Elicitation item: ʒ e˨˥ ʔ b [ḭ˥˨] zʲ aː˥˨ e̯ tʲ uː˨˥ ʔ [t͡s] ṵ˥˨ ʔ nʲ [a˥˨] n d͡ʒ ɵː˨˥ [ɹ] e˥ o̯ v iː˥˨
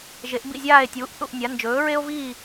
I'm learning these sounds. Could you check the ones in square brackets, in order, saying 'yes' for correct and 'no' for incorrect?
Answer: yes, no, no, yes

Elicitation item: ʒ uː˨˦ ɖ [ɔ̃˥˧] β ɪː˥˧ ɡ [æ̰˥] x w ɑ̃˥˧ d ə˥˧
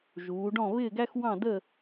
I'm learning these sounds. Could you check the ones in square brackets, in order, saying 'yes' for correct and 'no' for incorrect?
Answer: yes, no

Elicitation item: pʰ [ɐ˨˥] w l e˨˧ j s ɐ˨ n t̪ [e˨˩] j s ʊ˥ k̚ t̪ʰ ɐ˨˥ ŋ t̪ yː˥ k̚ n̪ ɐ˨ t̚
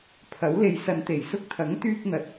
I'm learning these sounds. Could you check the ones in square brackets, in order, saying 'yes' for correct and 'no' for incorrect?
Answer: yes, yes

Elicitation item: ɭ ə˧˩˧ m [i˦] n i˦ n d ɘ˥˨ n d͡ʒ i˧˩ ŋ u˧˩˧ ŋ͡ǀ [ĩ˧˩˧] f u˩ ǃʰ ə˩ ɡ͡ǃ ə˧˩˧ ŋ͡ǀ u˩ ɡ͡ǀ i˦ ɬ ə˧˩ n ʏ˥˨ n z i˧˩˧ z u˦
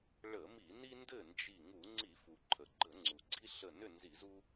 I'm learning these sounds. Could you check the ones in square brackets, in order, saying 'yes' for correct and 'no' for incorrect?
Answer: no, no

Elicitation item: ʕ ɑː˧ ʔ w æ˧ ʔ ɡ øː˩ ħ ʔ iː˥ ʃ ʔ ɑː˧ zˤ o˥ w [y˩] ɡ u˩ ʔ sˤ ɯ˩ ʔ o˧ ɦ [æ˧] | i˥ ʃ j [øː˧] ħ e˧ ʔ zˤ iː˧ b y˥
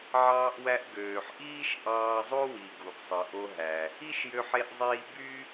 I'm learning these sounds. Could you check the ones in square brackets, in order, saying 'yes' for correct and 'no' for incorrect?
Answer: no, no, no

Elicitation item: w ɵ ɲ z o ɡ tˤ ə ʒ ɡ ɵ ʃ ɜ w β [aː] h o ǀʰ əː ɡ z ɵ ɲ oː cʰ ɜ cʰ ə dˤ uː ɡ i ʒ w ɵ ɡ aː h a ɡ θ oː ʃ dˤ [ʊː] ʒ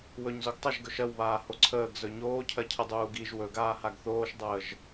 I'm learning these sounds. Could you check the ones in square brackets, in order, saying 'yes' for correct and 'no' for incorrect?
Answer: yes, no

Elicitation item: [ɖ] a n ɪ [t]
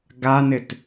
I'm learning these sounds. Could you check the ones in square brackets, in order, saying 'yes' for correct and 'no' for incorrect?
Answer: no, yes

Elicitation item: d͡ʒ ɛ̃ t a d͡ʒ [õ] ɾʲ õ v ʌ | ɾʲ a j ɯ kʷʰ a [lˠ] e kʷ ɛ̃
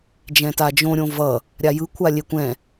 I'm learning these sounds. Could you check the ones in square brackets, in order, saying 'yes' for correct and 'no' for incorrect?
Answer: yes, no

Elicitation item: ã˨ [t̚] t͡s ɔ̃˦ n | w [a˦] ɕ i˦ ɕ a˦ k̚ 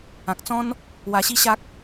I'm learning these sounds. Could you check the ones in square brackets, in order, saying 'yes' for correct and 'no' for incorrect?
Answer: no, no

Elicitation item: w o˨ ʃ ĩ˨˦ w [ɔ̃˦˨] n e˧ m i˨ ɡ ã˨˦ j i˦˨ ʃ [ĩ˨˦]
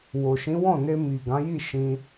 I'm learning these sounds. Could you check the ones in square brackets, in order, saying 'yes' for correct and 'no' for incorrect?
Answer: yes, no

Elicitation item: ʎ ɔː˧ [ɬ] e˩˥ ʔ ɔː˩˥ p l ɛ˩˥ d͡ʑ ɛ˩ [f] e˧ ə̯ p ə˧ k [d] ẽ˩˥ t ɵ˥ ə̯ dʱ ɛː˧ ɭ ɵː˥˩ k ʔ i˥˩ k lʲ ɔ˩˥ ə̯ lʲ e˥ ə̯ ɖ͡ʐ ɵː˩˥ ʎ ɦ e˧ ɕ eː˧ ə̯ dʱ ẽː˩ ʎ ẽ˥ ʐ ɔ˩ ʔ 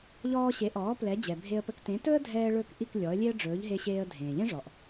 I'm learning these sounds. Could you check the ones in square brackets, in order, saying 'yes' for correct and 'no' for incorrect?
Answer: no, no, no

